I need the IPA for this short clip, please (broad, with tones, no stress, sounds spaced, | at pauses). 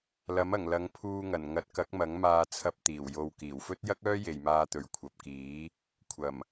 l ɐ˨˥ m ɐ˨˩ ŋ l ɐ˨˧ ŋ pʰ uː˧ ŋ ɐ˨˩ n ŋ ɐ˨˥ t̚ k ɐ˨˥ k̚ m ɐ˨˥ ŋ m aː˧ t͡sʰ ɐ˧ p̚ t̪ iː˨˩ w j o˨ w k iː˨˩ w f ɵ˥ t̚ j ɐ˥ k̚ œː˥ j e˨ j m aː˧ t̪ ɵ˨ ɥ kʷʰ ɐ˨ p̚ k iː˨˥ | kʷʰ ɐ˨˩ m